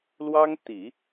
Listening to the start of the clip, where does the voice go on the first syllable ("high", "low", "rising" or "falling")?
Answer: high